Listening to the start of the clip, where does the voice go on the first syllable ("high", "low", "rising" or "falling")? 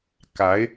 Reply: rising